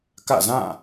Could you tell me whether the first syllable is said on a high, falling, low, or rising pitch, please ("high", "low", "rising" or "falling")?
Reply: falling